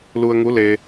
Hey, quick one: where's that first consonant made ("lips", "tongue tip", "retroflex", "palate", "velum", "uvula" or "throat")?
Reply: tongue tip